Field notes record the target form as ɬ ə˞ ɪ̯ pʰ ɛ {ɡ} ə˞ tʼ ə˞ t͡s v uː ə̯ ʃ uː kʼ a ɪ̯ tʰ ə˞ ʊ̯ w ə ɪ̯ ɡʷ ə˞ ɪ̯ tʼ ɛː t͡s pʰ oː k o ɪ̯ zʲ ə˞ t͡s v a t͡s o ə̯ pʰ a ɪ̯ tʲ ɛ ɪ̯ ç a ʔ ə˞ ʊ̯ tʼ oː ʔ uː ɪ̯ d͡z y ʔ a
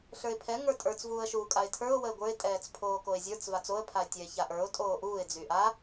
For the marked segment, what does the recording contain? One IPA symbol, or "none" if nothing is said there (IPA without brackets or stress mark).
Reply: ŋ